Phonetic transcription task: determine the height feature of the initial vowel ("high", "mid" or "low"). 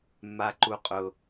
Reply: low